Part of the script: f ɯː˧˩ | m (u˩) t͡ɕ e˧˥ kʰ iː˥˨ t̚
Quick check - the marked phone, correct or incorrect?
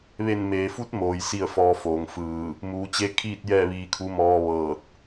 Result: incorrect